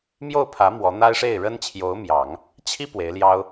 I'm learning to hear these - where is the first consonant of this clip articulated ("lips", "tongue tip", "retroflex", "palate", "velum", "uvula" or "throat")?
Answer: lips